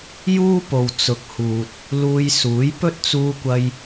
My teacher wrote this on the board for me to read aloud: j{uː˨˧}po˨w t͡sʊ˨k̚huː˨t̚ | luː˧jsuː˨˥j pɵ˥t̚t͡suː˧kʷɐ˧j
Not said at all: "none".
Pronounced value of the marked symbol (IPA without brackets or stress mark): uː˥